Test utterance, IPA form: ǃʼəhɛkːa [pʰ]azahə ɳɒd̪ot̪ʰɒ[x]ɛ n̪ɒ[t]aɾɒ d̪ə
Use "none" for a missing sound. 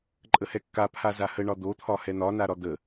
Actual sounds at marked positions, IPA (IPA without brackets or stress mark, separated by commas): pʰ, h, n